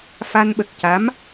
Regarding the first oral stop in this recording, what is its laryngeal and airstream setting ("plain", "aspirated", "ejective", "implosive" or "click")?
implosive